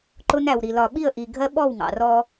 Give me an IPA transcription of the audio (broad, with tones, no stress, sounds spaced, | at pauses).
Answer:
ǃ ʊ˦ n æ˨ w ɾ i˨ l ɒ˨ ɓ i˦˨ ə̯ ʔ i˨ ɡʱ ɜ˦ ɓ ɔ˦˨ w ŋ ɑ̰˨ r ɔ˦